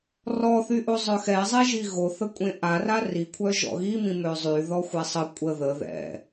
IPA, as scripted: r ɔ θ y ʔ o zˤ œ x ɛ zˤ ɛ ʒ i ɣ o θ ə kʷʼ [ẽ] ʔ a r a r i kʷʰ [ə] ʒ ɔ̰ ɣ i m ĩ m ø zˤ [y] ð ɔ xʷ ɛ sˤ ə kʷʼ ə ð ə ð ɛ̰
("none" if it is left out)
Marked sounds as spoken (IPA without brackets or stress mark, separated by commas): ẽ, œ, y